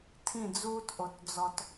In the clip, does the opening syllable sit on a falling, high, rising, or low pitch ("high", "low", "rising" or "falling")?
falling